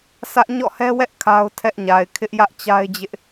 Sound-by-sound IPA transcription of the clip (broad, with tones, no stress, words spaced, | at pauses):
sä˦ʔ ɲɔ̰˦˨hɛ˦wɛ˦ʔ kʰa˦ʊ̯tʰɛ˦ʔɲa˨ɪ̯ kʰɪ˦ʔjä˦ʔt͡ɕa˦ɪ̯d͡ʑɪ˦ʔ